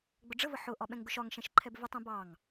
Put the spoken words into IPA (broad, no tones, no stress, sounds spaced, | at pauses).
ɡ͡b ʊ ɖ͡ʐ ə v ə ħ ʊ ʔ ɒ ɓ ɛ̃ ŋ ɡ ʊ ʃ ɒ ŋ ʃ ɛ̃ ʃ ǃʰ ɛ b v ɪ tˤ ɛ̃ b ɑ ŋ